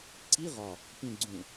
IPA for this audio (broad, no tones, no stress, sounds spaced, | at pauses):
ǀ i ʁ ɒ | p ĩ ɡ͡ǀ ũ